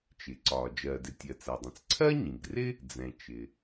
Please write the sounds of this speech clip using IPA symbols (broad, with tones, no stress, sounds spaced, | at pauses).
t͡ʃ ɪ˩ ǀ ɒ˩ d͡ʒ ɜ˩ d ɪ˩ tʲ ɜ˩ t͡s æ˩ dˤ ĩ˩ t͡s ǀʰ ɜ˥ ɲ ĩ˩ ɡ r ɪ˥ | d͡z ɛ̃˩ t͡ʃ ɪ˩